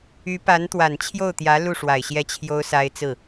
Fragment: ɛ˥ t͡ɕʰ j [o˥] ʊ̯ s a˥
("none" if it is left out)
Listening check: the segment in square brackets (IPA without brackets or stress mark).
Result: o˥